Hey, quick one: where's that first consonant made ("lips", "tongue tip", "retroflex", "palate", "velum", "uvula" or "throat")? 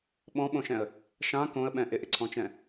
lips